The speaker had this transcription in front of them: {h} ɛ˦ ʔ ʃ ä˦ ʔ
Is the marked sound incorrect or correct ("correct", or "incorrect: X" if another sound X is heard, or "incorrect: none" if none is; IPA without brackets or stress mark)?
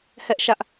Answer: correct